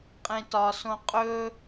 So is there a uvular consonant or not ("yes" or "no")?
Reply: yes